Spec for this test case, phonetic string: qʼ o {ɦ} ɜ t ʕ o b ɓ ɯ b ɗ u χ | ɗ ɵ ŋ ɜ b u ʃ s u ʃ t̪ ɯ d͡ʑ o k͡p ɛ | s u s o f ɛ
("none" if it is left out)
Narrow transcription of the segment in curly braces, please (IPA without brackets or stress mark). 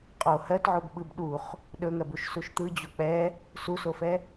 h